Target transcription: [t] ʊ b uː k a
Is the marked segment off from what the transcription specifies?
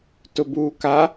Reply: no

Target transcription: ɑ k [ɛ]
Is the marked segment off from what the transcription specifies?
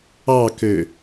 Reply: yes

